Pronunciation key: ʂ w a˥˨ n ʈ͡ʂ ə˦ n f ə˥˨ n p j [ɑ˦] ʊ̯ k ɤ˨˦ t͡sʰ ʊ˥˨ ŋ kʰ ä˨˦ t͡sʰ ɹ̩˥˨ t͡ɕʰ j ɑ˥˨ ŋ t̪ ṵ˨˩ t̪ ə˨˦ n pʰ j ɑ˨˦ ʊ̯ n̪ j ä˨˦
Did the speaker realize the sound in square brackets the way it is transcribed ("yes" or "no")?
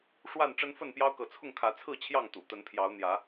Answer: yes